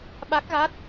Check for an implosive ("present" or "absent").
present